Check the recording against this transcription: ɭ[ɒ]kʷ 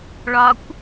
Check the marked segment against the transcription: correct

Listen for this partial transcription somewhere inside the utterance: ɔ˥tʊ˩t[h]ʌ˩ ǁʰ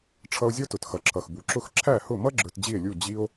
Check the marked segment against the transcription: incorrect: x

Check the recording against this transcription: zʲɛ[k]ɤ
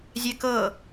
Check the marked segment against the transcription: correct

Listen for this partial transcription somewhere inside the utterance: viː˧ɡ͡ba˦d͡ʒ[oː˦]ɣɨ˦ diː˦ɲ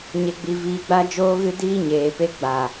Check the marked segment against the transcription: correct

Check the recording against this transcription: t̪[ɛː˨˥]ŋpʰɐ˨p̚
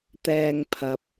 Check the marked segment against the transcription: incorrect: ɛː˧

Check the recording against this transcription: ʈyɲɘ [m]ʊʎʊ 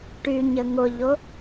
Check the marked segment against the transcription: incorrect: ŋ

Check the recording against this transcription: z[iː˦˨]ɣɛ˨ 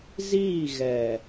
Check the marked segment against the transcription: correct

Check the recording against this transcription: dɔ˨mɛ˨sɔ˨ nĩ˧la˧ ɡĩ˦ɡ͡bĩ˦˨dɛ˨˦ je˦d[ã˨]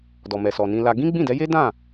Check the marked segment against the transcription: incorrect: ã˦˨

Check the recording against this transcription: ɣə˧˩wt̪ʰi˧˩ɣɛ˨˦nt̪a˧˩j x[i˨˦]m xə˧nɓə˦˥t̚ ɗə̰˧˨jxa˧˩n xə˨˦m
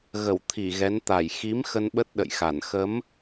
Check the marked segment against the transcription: correct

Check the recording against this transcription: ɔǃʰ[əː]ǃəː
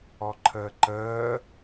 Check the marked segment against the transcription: correct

